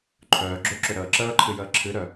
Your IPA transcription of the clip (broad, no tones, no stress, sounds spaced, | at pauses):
ǃʰ œː ɡ͡ǁ ø ǁ ø ɾ əː ǁ əː ǃʰ ɨ j əː ǁʰ ɨ ɾ œ